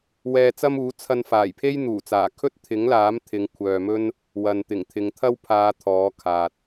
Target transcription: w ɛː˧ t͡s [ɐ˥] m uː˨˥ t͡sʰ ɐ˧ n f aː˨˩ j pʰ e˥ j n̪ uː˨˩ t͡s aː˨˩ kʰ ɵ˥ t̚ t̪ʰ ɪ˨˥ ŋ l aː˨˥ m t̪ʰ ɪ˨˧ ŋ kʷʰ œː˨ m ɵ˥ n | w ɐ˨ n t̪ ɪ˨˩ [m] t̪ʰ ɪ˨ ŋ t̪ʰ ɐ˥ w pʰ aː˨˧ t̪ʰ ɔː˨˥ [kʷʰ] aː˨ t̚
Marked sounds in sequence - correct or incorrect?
correct, incorrect: ŋ, incorrect: kʰ

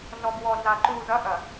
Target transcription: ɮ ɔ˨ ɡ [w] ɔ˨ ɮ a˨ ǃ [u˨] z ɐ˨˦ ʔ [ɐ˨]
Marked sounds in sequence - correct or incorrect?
correct, correct, correct

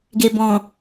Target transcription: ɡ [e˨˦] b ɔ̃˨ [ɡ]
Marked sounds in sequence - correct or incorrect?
incorrect: e˨, incorrect: none

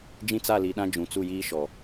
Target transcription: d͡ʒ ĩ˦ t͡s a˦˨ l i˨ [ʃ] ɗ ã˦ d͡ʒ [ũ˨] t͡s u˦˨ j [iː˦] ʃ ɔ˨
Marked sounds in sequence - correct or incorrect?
incorrect: none, correct, correct

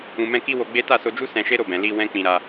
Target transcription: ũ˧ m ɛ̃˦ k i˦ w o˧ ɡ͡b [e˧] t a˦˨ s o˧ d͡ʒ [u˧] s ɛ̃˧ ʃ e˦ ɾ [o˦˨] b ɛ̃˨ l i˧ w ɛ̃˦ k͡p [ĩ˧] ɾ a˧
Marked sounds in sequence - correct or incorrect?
incorrect: e˦, incorrect: u˦, correct, correct

